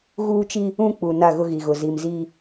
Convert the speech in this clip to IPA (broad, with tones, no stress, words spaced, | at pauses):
ɣuː˦t͡ʃi˦ | ũ˦k͡pu˨ na˦˨ɣʊ˦ɣi˨ɣʊ˨ zi˨m zi˦